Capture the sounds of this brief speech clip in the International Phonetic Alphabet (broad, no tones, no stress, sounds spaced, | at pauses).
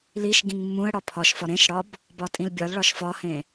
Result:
l i ʃ ɡ ĩ ŋ mː ũ ə̯ ɽ ɒ pʰ ɒ ʃ f ɒ ɾ ẽ ʃ ɽ ɒ b | b ɒ tʼ ĩ l bʲ ɒ l ɭ ɒ ʃ f ɒ h ẽ